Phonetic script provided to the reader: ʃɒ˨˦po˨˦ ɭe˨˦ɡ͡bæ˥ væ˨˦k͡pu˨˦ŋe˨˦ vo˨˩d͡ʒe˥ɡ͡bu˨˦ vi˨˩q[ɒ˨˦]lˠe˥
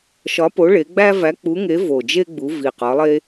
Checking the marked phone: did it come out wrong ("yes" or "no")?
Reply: no